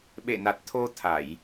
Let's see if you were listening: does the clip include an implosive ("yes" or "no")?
yes